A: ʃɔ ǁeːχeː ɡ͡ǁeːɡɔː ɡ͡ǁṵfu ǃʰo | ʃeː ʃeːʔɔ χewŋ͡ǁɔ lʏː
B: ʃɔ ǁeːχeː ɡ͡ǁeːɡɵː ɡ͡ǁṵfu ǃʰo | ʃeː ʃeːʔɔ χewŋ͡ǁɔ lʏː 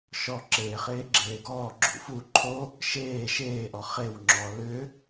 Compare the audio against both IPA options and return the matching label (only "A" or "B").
A